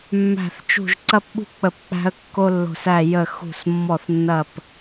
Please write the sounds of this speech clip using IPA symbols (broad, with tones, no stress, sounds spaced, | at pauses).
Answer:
mː æ̤˧˩ θ t͡ʃ ṳ˧˩ ʒ ǀ ɐ˦ p ɓ ṳ˦ k͡p ə˧˩ p k͡p æ̤˦ ə̯ kː o˦ lː o̤˧˩ s æ˧˩ j ə˧˩ x ṳ˧˩ s mː ɔ˧˩ θ nː ɐ˧˩ p